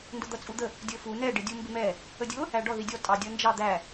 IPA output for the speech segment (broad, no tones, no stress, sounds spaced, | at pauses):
n d ʊ d̪ ʌ t͡sʼ u d̪ ə | dʲ ə˞ f u n ɛ ɖ ɪ dʲ u m b ɪ m ɛ | ə dʲ ʊ | æ ɖ ɔ ð i dʲ ɔ tʼ ɑ dʲ ʌ n d͡ʒ ɑ d̪ æ